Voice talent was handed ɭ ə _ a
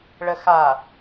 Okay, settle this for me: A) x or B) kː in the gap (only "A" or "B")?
A